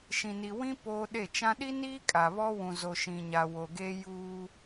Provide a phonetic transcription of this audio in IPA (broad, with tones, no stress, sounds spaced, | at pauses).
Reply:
ʃ ĩ˨ n i˨ w ĩ˦ p oː˦ ɗ e˦˨ t͡ʃ ã˦ ɗ i˦ n iː˦ kʼ a˨ β ɔ˦ w ũ˨ z o˨ ʃ ĩ˨ ɲ a˨ w o˨ ɡ e˦ j uː˦